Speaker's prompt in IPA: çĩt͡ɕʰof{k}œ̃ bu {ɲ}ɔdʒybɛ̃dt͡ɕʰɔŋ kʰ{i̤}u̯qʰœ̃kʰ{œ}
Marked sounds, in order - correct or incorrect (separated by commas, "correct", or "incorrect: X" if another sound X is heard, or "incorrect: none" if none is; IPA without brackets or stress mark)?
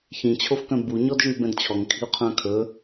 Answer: correct, correct, correct, incorrect: ɵ